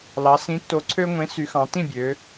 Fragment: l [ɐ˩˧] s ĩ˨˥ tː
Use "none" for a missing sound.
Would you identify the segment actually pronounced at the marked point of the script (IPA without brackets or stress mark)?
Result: ɑ˩˧